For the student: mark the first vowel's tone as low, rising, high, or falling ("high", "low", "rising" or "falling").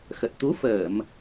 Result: low